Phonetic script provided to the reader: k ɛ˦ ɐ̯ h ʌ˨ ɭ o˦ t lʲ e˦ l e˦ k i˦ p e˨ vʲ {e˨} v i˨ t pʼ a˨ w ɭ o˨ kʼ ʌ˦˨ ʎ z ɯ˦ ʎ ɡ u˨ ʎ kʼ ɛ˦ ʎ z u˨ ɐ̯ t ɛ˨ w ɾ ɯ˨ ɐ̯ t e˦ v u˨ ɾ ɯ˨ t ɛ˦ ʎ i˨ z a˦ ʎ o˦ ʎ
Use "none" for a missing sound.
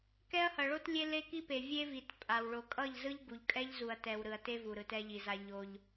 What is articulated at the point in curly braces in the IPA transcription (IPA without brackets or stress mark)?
e˦